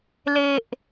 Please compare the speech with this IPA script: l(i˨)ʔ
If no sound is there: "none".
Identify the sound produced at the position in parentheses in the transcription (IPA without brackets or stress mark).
e˨